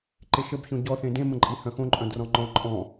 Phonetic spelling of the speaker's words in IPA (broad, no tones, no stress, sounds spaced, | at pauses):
ǃ e ʃ ə b ç õ ɟ ɔ θ ẽ d ẽ m ə̃ ǃʼ i h œ̃ x õ ǃʼ œ̃ d r ɔ̃ ŋ͡ǃ ɔ̃ ǃʼ ɔ̃